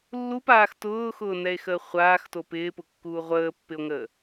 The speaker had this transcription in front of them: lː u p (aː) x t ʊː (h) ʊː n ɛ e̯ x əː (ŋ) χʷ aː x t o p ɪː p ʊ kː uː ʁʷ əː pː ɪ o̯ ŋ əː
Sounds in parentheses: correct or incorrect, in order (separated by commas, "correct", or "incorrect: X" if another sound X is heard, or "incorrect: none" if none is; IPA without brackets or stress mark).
correct, incorrect: x, incorrect: none